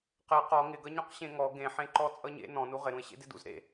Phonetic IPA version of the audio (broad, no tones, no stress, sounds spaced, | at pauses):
q e q ɔ ŋ ɪ ɡ ʌ ɲ ɔ̃ q ɕ ẽ ŋ ɔ ɡ ẽ ħ ẽ ǃ ɔ t͡sʼ ʌ ɲ ḛ n ɔ̃ n u ʁ ɪ ɾ ũ ɪ̯ ɕ ḛ d ɪ d ṵ z ɾ ḛ